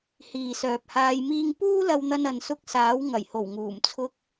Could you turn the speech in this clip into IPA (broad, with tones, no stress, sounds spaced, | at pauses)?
h iː˨ s œː˨ p̚ h aː˧ j m iː˧ ŋ p uː˥ l ɐ˧ w n̪ ɐ˧ n ɐ˨ n s ʊ˧ k̚ s aː˨˥ w ŋ ɐ˨˩ j h o˨˩ w ŋ uː˨˩ m t͡sʰ ʊ˧ k̚